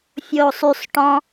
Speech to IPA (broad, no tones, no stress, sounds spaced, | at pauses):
fʲ oː sˤ y sˤ ʈ ɔ̃